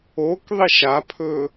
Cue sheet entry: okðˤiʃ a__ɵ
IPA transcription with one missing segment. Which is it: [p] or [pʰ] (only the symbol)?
pʰ